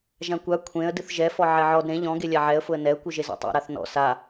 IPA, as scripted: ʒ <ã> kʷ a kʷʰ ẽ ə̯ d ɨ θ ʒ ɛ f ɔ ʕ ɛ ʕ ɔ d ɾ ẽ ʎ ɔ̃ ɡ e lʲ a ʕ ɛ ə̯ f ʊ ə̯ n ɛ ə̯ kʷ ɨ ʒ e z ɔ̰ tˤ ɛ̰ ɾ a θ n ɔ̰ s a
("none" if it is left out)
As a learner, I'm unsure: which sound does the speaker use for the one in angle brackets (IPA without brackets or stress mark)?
ã